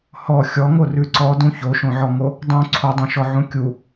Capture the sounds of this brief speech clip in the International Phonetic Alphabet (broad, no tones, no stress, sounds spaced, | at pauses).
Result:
h ɔ xʲ ɔ ŋ o r ʉ ǀ ɔ d ũ ç o ʃ õ ʕ ɔ ŋ o | dˤ ũ ǀʰ o dˤ õ ʃ ɔ ʕ ũ kʲ u